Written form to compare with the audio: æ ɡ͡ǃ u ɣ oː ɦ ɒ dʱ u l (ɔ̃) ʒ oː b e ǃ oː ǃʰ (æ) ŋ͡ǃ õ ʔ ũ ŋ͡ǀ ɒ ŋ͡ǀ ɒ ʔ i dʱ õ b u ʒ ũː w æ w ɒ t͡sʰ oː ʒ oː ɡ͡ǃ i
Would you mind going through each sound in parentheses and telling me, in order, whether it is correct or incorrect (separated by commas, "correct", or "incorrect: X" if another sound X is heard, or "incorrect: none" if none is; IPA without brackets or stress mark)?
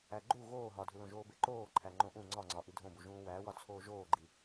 incorrect: õ, correct